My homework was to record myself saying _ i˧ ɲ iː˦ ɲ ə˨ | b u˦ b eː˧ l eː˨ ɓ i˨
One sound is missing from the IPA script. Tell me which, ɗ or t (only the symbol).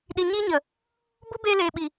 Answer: ɗ